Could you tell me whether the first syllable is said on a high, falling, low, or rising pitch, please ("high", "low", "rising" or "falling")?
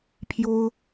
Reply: high